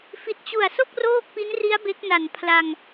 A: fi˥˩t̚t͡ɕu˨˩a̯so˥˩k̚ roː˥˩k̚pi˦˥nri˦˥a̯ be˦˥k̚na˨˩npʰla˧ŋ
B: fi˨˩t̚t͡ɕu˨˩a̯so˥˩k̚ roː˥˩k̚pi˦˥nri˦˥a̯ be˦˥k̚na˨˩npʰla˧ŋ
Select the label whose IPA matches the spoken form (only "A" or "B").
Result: B